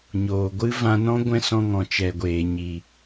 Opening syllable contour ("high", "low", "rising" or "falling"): low